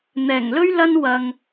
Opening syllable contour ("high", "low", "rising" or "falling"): low